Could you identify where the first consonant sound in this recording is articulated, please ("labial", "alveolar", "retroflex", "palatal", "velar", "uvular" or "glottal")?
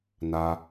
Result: alveolar